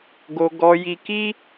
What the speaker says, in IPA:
ɡo˧ ɡɔ˧ji˧ki˦

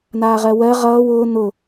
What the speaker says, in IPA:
naːʁɜwɜ ʁʌːw ʊː n̪ʊ

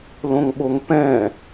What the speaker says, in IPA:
lõŋɓoŋpɛ̃

